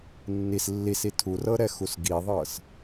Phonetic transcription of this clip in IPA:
nː i s lː i s i tʰ u r ɤ ɾ ɛ x u s ɡ i ðˤ ɤ s

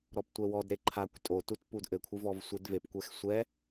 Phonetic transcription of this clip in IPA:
ɾ ɔ p tʷ ɛ w ɔ d ɾ e ǃʰ a kʷ tʼ o t u t p u d ʔ ɘ kʷʰ ɨ v ɔ v sʷ e d v e p kʷ ɛ x sʷ ɛ

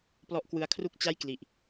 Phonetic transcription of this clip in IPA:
p l ɔ˦˥ ʔ k w ɯ˧ a̯ kʰ r u˥˩ k̚ t͡ɕ a˥˩ j k l i˨˩ ʔ

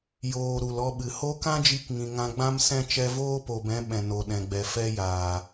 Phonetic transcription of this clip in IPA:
j oː˨ ɾ u˨ l ɔ˧ ɓ ɨ˨ h o˦ k ã˦ d͡ʒ i˧ k ŋ ĩ˨ ŋ ã˧ ɡ͡b ã˦ m s ɛ̃˦ t͡ʃ ɛ˧ v oː˦ p o˨ b ɛ̃˨˦ ɓ ɛ̃˨ n o˨ ɗ ɛ̃˨ ɡ͡b ɛ˨ f ɛ˧ j aː˨

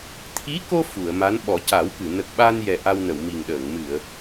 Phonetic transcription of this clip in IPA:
t̪ʰ i˧˥ k o˧ f u˨˩˨ ə̯ m a˧˥ n ɓ ɔ˨˩˦ c a˨˩˦ w k ɨ˨˩˨ n ə˨˩ k̚ ɓ a˧ n j ɛ˨˩ ʔ a˧ w n ə˨˩˨ w m i˨˩ ŋ ɗ əː˨˩˨ ŋ m ɨ˨˩˨ ə̯

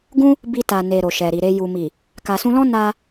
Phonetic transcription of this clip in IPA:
ɡ ũ˦ | b i˧ t a˨ n e˨ ɾ o˨ ʃ ɛ˨ ɾ i˨ ɾ e˧ j u˨ m i˨ | k a˨ s ũ˧ l ɔ̃˦ n a˧

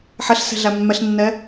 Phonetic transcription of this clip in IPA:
ħ ɛ ɬ s ɛ̤ ɮ æ mː ɛ ɬ nː ɛ

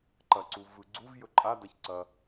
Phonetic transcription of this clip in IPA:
ǃ ɐ ǀ u v ɯ ɡ͡ǀ u v j ɵ ǃʼ a d ɐ ç ǀ ɐ

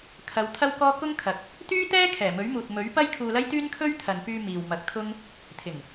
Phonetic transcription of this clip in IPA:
kʰ ɐ˨˧ w t̪ʰ ɐ˥ w k ɔː˥ k ʊ˥ ŋ kʰ ɐ˨ k̚ | t̪ yː˥ t̪ ɛː˥ kʰ ɛː˨˩ m ɵ˨˥ ɥ m uː˨ t̚ m ɵ˨˥ ɥ p ɐ˥ j kʰ uː˧ l ɐ˥ j t̪ yː˥ n kʰ ɵ˥ ɥ t̪ʰ ɐ˨ n p yː˧ m iː˨ w m ɐ˨˥ k̚ t̪ʰ ʊ˥ ŋ | t̪ʰ ɪ˨˩ ŋ

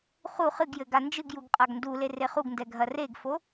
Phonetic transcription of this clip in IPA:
χ u χ ɨ ɡ j ɘ ɡ a n d͡ʒ ɨ ɡ j u ɡ qʼ a ɡ n d u l e r e χ u ɡ n d ɛ ɡʱ ɐ r e ɡ f o

